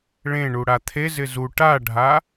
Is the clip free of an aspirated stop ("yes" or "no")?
no